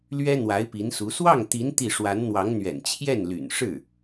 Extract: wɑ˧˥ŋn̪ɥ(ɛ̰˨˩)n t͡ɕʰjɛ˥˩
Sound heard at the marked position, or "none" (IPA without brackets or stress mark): ɛ̰˨˩